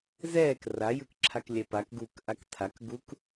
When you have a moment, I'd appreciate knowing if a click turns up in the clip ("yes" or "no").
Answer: yes